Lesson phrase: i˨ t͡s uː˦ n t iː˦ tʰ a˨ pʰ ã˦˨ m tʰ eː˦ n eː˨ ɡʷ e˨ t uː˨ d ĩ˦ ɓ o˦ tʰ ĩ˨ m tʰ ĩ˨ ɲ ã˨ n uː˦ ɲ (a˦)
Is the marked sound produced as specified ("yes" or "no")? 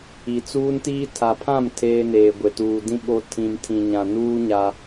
yes